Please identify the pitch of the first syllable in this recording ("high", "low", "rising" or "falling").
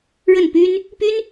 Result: falling